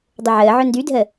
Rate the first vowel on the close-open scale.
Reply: close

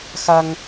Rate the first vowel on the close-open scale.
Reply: open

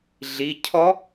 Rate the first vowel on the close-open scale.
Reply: close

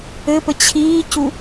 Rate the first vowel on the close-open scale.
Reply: mid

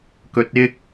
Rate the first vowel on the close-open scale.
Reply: mid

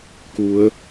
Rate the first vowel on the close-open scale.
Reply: close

